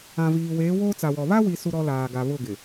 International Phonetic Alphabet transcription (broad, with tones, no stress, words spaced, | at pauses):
ã˨viː˨weː˨˦ woː˦t͡sa˨wɔ˨ βa˦wi˨ su˦ɾɔ˦ laː˨ɡa˨ βʊ˦˨ɡɪ˨